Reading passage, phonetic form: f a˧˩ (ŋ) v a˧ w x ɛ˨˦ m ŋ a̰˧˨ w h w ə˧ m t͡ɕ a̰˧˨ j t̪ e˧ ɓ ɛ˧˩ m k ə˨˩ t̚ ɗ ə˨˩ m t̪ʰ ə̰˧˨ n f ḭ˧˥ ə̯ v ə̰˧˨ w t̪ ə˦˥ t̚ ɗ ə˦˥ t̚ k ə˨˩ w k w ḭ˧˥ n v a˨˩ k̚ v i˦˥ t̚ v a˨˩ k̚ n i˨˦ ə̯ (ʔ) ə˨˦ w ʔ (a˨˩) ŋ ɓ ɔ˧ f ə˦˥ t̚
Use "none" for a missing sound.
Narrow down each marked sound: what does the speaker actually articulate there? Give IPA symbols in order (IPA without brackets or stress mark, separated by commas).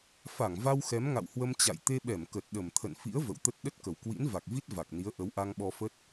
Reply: ŋ, ʔ, a˧